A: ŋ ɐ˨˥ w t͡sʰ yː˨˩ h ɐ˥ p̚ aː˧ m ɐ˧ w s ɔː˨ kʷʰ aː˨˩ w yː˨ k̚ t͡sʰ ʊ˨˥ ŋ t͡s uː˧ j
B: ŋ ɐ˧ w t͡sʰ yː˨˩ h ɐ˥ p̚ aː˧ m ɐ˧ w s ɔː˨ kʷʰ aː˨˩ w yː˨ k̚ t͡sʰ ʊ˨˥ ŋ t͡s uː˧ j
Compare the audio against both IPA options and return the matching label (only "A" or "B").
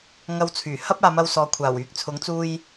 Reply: B